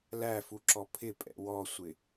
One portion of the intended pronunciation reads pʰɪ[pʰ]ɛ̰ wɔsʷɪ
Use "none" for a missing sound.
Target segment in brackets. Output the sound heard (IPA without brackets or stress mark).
pʼ